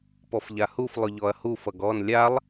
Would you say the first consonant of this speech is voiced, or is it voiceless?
voiceless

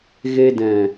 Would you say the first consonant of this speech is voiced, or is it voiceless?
voiced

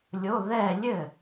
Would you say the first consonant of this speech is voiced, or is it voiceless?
voiced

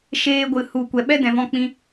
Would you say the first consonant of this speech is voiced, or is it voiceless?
voiceless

